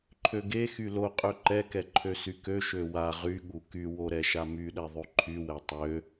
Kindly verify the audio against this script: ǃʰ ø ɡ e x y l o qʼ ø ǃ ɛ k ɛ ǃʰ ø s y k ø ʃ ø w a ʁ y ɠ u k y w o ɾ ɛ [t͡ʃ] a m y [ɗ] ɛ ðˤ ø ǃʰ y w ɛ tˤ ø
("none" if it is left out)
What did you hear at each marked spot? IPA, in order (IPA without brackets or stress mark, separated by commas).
ʃ, ɗ